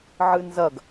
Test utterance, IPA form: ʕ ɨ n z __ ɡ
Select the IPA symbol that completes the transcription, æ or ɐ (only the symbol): ɐ